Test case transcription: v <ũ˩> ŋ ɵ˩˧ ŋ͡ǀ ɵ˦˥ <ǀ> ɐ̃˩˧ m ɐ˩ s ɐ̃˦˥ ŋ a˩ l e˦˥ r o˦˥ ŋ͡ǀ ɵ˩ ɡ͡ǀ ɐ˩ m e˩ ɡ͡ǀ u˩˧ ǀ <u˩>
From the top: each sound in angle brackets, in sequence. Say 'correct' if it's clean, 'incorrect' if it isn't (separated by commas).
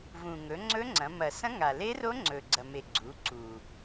correct, incorrect, correct